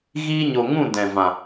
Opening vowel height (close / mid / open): close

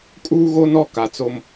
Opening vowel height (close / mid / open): close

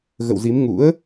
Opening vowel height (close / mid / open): mid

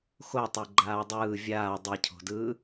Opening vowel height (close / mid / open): mid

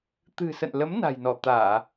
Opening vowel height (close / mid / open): close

